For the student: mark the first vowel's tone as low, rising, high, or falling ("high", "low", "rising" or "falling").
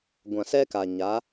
low